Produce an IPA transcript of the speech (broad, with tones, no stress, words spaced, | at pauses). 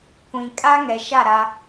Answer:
kʷĩ˨ kʼa˦ŋɛ˨ʃa˦˨ ɾa˦